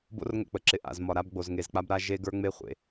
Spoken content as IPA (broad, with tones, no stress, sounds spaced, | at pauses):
b o̰˦ r ŋ ə̰˦˨ k͡p ə˨ ǁ ɪ˨ ʔ a̰˨ z m ɒ˨ ɾ a˦ b ɡ͡b o˨ z ŋ e˨ z k͡p a˦ b ɾ a˦ ʒ e˦ ɡ ə˞˦ ŋ͡m e˦ χʷ ḛ˨